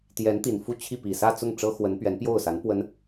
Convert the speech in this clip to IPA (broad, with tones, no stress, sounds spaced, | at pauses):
t̪ j ɛ˧˥ n t̪ i˨˩ n f u˥˧ t͡ɕʰ i˥˩ p i˨˩ s ä˥˧ t͡s ʊ˥˩ ŋ ʈ͡ʂ ɤ˥ x w ə˧˥ n p ɥ ɛ˧˥ n p j o˥˩ ʊ̯ s a˧˥ n p w ə˧˥ n